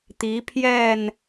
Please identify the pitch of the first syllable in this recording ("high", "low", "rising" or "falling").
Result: rising